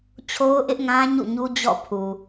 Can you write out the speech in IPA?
t͡ɕʰ o˦ ʊ̯ ʔ ɪ˦ ʔ ŋ ã˦ ɲ ṵ˦˨ ɲ u˦ d͡ʑ ɔ̰˦˨ pʰ u˨

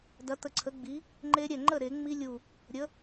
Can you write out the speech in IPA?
d ɐ˨˥ t̪ ə˧˩ ǀʰ ə˨˥ ɡ͡b i˨˥ | ŋ͡ǃ e˦˥ ɾʲ ɛ˥˩ ŋ͡ǃ ə˥˩ ɾ e˨˩˦ ŋ͡m i˦˥ lʲ u˧˩ | ɾʲ ə˨˥

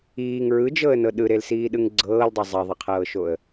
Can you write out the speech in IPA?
iː ŋ ɹ ɯ d͡ʒ ɤ ə̯ n ɤ ɗ ɯ ɾ e l s iː ɗ ɯ ŋ ɡ͡ǀ ɤː l dˤ ɤ zˤ e ðˤ ɯ qʰ ɤː ʃ o ə̯

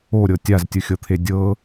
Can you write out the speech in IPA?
o ɾʲ ɤ tʲ a z tʲ ɯ xʲ ɤ t̪ʰ e dʲ ɤ

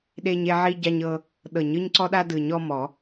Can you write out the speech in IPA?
ɗ e˦ ɲ e˦ ʕ i˦ ɟ a˦ ɲ ɤ˦ | ɗ ɤ˨˩˦ ɲ ɯ˦ ɲ ǀ ɔ˦ ɗ a˦ d ɯ˨˩˦ ɲ ɔ˦ m ɔ˨˩˦

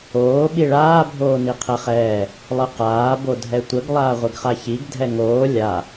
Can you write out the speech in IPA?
oː ɓ i ɭ aː bʱ oː n i qʰ ɛ χ ɛː | lˠ ə q aː b o dʱ ɛ tʷ ə ɡ lˠ aː ʁʷ ɨ ɡ χ a ç i ɡ dʱ ɛ ŋ oː lʲ a

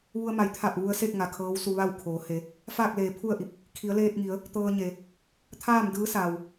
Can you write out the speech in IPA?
ʋ u˧ ə̯ m a˩˧ j t̪ʰ a˧˩ p̚ ʋ u˧ ə̯ s e˥˨ k̚ ŋ a˩ kʰ ɤː˧˥ w s u˧ ʋ a˥˨ w kʰ oː˩˧ h e˩˧ | f aː˥˨ k̚ l eː˩˧ pʰ u˥˨ ə̯ ʔ i˧˩ p̚ | kʰ i˩˧ ə̯ l eː˧ t̚ ŋ i˩˧ ə̯ | t̪ ɤː˧ ɲ e˩ | t̪ʰ aː˥˨ m d ɯː˧˥ s aː˩ w

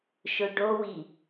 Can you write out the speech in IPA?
ʃ ʊ ɖ o w i

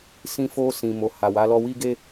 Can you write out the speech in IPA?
s ĩ˧ f o˧ s ĩ˨ m o˨ h a˨ w a˨˦ l ɔ˧ w i˦ ɡ e˦

